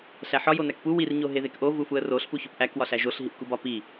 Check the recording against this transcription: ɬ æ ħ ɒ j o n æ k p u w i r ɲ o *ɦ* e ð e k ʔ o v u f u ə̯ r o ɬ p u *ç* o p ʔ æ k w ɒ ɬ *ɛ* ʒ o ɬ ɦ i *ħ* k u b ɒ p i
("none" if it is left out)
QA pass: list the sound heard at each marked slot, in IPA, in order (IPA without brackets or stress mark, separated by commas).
ɦ, ç, æ, ʔ